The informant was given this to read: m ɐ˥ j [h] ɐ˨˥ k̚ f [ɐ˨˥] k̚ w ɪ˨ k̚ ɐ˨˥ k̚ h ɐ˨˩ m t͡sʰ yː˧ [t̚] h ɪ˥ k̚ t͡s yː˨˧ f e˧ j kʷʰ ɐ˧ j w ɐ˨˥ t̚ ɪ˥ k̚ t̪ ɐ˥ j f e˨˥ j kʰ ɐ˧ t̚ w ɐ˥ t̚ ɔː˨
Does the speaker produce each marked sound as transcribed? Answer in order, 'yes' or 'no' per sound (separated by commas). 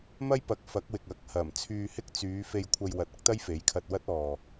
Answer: no, yes, no